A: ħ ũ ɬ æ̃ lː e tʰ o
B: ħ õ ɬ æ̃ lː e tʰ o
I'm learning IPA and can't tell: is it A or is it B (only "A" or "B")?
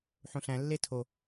B